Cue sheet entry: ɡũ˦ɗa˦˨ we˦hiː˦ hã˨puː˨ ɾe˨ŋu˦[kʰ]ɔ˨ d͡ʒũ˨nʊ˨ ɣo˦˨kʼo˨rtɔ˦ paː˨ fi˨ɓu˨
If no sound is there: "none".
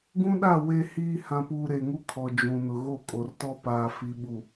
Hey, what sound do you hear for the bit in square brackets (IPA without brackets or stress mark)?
kʰ